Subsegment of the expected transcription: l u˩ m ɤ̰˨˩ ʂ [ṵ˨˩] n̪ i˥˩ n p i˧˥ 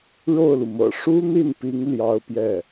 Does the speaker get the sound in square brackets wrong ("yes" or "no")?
yes